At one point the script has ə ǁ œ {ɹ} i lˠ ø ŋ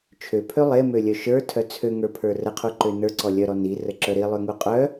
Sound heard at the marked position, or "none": ɾ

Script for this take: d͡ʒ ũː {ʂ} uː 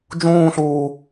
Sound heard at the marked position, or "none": ɬ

